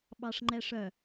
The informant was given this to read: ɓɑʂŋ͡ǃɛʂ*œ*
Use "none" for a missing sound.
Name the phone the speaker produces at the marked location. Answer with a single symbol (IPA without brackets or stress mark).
œ